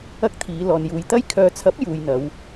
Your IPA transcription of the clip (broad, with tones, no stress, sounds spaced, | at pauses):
ɐ˥ k̚ t̪ʰ iː˨˧ l ɔː˨ n j uː˨˧ j t̪ ɐ˥ j kʰ œː˨ t͡sʰ ɐ˨˥ p̚ j uː˨ j n̪ ɐ˨˧ w